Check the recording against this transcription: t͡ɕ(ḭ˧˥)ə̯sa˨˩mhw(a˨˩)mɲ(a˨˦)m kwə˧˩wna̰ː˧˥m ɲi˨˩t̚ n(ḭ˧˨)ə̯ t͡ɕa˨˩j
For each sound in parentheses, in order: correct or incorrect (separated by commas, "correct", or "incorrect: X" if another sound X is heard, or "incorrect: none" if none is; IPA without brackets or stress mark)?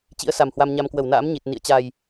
correct, incorrect: a˧, incorrect: a˧, correct